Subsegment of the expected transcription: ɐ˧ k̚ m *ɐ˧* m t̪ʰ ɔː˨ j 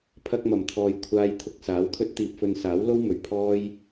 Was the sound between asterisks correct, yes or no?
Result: no